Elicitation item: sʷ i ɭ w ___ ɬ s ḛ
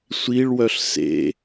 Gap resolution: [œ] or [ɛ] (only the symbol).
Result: œ